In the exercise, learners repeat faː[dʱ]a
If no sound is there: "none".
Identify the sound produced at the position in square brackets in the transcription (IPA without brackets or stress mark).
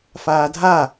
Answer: dʱ